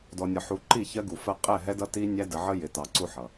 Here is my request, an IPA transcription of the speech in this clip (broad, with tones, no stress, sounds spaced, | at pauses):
d ɔ˨ nʲ ɒ˨ ħ u˨ ǃ i˦˨ ç ɜ˦ ɡ u˨ f ɜ˦ qʼ ɛ˦˨ ɦ ɛ˦ d ʌ˦ t i˦ nʲ æ˦ d ə˨ ʕ ə˦ j ɪ˨ t ɑ˨ ǀ u˦ ħ ʌ˨